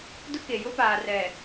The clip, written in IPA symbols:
dʊ˦ke˨jʊ˦paː˨ rɛ˨

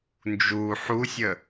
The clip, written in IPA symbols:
nd͡ʒu ħusʲə

